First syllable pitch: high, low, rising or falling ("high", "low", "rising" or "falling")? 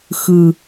low